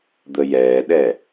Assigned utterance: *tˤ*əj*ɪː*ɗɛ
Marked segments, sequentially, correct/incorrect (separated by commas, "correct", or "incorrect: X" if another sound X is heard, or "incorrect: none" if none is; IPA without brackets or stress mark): incorrect: d̪, incorrect: ɛː